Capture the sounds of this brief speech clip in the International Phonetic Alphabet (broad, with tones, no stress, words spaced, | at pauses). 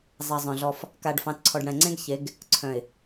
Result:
zˤɛ˨zˤœ̃˨ɮɔ˦f | ka˨ɖfɑ̃˨t ǀʰɔ˨ɖɽɛ̃˨ ŋ͡ǀẽ˦ɡçe˨˦ɡ | ǀʰœ̃˨ɪ̯